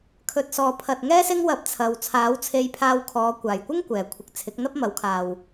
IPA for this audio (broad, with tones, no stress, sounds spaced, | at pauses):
kʰ ɵ˨ t̚ s ɔː˨ pʰ ɐ˨ t̚ ŋ ɛː˥ s ɪ˥ ŋ w ɐ˧ p̚ t͡sʰ ɐ˨ w t͡sʰ aː˨˥ w t͡sʰ e˧ j pʰ aː˧ w kʰ ɔː˨˧ kʷ aː˨˩ j kʷ ɪ˥ ŋ kʷ ɛː˨˩ kʷʰ ɪ˨ k̚ t͡sʰ ɪ˨˥ k̚ n̪ ɐ˥ p̚ m ɐ˨˥ w kʰ aː˨ w